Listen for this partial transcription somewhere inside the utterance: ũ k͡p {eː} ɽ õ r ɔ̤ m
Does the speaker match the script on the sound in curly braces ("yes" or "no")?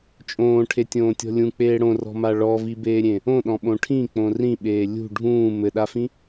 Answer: yes